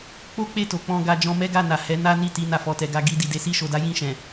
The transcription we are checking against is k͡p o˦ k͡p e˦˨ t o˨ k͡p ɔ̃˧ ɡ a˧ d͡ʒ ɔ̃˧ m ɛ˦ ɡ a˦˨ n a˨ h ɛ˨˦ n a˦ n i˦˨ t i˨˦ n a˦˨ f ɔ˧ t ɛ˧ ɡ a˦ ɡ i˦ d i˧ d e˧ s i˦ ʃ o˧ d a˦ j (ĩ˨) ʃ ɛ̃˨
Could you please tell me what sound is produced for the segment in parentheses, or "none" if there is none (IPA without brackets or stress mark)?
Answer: ĩ˦˨